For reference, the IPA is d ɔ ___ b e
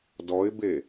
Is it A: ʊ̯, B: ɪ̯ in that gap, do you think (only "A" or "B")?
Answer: B